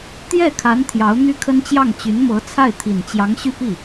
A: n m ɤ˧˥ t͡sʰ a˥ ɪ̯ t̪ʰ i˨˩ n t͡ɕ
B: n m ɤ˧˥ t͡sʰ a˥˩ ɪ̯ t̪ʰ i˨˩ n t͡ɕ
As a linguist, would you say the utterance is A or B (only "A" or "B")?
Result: B